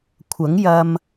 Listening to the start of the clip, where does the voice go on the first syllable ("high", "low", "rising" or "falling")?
rising